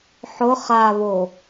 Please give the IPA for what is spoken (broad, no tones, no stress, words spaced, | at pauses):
ħʊ χaβo